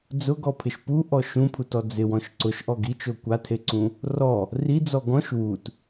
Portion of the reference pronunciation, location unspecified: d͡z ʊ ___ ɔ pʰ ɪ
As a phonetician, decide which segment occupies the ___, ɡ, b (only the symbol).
ɡ